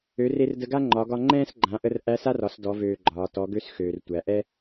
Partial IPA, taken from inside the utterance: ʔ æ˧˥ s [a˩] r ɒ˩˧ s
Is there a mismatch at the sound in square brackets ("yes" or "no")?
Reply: yes